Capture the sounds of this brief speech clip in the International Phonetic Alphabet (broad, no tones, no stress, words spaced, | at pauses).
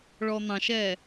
ɭɔn̪ɑ̃ʃɛ